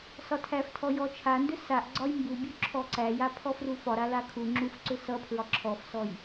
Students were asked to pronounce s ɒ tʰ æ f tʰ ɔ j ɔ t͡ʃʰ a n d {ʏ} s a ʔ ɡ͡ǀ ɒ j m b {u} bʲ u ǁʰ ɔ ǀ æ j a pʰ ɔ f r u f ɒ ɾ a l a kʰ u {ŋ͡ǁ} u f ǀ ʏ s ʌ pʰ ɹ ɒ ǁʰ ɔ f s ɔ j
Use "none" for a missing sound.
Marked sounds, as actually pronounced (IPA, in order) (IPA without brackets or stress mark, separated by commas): ʏ, u, ŋ͡ǁ